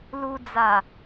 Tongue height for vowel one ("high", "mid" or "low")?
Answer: high